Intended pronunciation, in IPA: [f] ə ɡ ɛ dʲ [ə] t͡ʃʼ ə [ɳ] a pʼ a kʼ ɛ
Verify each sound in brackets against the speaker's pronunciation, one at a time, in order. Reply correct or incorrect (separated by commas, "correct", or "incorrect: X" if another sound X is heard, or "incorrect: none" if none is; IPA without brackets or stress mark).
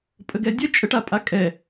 incorrect: pʼ, correct, incorrect: ʈ